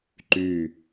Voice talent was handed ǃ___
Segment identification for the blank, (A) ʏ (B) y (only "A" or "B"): B